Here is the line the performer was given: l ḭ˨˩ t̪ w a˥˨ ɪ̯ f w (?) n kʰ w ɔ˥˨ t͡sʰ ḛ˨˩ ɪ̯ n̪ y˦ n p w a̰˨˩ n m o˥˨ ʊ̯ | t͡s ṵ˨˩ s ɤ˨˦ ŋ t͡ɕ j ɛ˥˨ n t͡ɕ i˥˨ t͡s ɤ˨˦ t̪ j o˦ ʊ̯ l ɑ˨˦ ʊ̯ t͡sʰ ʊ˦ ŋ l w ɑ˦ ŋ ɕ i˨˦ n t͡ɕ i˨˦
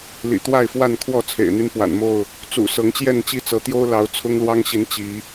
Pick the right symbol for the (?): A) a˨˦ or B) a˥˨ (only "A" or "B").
B